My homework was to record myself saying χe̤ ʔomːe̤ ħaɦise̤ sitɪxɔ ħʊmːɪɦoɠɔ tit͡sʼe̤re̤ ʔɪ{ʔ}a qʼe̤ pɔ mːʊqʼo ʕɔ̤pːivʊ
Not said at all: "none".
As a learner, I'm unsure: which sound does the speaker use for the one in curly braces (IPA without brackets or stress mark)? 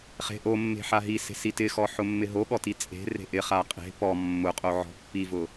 χ